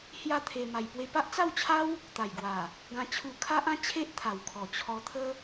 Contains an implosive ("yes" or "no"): no